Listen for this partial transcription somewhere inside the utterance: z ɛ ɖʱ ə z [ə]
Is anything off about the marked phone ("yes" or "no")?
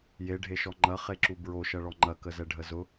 yes